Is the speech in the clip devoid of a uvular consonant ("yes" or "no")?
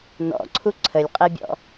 no